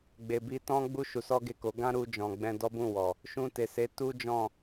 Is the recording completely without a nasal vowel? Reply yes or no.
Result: no